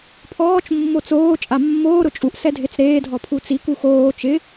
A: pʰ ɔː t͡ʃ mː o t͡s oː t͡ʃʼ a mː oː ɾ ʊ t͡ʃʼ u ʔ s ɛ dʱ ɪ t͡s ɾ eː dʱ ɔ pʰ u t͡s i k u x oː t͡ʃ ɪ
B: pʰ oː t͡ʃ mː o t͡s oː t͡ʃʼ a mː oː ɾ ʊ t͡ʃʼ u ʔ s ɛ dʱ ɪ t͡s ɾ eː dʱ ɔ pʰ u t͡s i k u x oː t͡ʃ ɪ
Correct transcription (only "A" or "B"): A